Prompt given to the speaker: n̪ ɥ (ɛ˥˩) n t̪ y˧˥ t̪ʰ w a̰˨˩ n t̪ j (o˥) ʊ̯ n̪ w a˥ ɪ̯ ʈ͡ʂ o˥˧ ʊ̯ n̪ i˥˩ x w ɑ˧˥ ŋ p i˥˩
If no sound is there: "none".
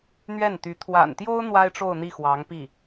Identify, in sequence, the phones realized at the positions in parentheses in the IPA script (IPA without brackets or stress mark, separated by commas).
ɛ˥˩, o˥